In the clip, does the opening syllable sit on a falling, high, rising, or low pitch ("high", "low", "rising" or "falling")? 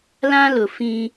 high